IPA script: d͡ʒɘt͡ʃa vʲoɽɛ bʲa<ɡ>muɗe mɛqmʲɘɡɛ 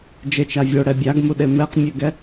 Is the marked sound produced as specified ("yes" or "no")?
yes